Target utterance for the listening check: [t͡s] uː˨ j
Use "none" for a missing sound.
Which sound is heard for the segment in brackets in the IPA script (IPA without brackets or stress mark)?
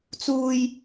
t͡s